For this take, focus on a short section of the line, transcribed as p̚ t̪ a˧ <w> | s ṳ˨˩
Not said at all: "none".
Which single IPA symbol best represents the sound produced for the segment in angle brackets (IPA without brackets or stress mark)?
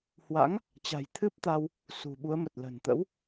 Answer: w